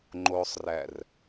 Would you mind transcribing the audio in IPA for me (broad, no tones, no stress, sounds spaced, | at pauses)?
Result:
ŋ͡ǃ o sˤ r æ r